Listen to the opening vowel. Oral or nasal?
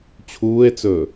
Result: oral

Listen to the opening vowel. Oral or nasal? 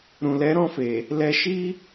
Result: nasal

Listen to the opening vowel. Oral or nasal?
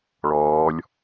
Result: oral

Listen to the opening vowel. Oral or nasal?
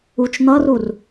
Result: oral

